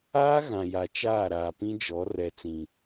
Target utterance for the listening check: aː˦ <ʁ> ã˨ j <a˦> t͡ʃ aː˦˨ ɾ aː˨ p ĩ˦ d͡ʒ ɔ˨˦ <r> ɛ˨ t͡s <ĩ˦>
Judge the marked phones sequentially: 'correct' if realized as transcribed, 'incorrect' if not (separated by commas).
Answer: incorrect, incorrect, correct, incorrect